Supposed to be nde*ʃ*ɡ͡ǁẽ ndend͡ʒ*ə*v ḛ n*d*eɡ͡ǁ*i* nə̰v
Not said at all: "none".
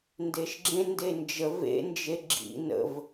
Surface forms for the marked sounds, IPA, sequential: ʃ, ə, d͡ʒ, ḭ

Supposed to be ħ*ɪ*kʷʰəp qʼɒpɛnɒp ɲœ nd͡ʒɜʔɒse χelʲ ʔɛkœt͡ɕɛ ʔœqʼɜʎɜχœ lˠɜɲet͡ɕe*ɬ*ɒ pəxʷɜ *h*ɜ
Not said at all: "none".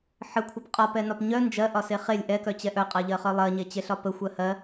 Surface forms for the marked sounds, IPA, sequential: ə, ɬ, h

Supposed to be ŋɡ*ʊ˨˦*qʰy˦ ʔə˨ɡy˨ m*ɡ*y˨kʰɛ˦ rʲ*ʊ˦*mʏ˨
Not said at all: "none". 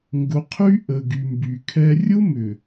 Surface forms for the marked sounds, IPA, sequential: ʊ˨˦, b, ʊ˦

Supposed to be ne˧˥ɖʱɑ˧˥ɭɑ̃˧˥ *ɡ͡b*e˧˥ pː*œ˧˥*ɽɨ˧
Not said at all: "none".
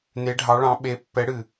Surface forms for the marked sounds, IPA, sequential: ɓ, ɛ˧˥

